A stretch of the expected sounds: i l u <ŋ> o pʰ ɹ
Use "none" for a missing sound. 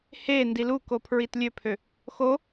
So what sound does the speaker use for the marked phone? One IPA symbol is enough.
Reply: k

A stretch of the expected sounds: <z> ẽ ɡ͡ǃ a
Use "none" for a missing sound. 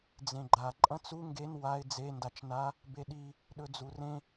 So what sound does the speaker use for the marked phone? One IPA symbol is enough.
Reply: d͡z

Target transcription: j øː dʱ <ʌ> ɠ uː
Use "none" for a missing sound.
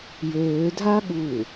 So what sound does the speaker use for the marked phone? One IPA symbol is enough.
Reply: a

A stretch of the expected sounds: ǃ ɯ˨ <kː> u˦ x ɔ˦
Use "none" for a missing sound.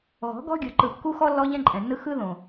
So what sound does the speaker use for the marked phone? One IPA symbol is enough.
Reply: kː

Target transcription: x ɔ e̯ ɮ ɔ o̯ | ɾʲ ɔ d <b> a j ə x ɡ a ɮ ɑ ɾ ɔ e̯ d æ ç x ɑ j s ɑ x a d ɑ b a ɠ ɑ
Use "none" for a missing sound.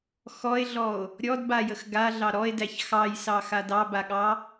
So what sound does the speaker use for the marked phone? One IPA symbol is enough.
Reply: b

